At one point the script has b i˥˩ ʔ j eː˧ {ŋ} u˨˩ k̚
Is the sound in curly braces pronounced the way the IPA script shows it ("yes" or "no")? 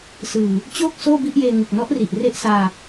yes